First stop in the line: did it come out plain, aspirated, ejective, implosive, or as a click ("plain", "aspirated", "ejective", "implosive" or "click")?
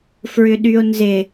implosive